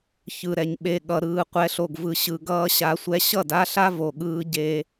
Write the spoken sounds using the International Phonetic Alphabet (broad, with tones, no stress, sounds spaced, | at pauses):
ç ɯ˨ ɾ ɛ˨ ɲ ɓ e˨ ɠ ʌ˨ ɾ ɯː˨ qʷ ɛ˨ ɬ o˨ ɡ v ɯ˨ ɕ ɯ˨ ɡ ʌː˦ ɕ a˨˦ sʷ ɛ˦ ɕ ʌ˦˨ d a˦ ɬ a˦ v o˨ ɠ ɯː˦ ɟ e˦